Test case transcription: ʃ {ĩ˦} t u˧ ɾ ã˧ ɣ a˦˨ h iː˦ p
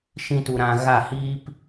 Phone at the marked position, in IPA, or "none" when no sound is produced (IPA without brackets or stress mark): ĩ˦